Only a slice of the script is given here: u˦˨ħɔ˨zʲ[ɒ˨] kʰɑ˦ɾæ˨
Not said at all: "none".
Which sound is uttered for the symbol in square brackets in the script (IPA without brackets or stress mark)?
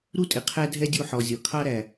ɒ˨